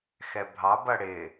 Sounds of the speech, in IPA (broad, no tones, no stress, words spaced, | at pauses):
xɛbʱɑbʌ ɽɪ